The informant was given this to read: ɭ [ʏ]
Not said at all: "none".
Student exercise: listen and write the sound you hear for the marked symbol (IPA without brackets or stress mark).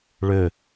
ʏ